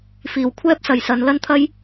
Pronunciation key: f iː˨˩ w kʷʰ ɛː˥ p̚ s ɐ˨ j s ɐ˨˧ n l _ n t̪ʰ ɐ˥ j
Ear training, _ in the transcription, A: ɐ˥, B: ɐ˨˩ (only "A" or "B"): A